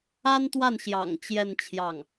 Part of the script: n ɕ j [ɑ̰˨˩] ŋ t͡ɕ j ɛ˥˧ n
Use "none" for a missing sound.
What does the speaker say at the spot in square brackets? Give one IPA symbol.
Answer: ɑ̰˨˩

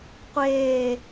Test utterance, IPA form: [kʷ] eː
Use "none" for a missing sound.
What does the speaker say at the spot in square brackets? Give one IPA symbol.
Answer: qʷ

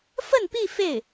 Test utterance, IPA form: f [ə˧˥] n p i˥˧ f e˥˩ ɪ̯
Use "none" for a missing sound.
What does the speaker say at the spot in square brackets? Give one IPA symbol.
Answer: ə˥˧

